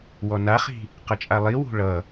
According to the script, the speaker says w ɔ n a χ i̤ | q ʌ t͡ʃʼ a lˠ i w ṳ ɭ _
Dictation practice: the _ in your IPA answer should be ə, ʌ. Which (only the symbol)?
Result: ʌ